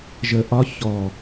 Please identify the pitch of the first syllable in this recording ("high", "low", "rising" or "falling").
low